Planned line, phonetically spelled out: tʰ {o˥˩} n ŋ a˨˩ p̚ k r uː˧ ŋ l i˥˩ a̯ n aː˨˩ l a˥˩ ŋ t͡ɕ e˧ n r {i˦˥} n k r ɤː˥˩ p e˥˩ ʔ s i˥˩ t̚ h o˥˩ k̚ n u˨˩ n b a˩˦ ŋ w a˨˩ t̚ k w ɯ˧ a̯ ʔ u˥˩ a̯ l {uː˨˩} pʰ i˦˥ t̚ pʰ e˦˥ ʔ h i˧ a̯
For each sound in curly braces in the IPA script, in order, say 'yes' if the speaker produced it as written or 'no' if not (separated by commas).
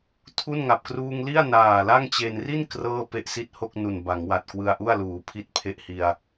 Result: no, no, no